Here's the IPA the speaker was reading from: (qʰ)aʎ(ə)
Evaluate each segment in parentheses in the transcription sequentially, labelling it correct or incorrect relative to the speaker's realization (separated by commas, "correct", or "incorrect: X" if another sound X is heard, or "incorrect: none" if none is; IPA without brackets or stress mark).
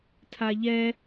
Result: incorrect: tʰ, incorrect: ɛ